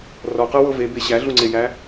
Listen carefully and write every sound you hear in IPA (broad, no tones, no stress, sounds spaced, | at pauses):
r ɔ q ɤ w ɤ v e b e ɕ æ ɮ u ŋ͡ǀ e j æ